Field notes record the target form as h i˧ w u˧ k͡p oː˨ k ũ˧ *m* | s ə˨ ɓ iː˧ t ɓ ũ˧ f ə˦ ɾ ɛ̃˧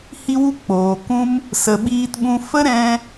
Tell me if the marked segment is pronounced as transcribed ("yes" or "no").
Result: yes